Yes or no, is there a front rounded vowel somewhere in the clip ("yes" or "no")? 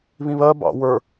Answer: no